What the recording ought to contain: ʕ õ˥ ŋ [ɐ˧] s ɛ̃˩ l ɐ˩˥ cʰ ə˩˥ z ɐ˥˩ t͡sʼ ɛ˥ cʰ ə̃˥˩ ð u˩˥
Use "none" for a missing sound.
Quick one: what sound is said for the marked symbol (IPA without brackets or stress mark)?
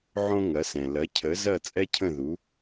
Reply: ɐ˩˥